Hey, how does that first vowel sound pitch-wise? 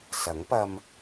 rising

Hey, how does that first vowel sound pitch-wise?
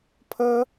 high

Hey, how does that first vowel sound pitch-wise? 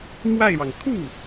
falling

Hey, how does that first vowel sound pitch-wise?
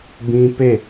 high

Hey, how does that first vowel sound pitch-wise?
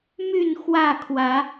falling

